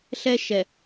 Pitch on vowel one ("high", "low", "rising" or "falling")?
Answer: high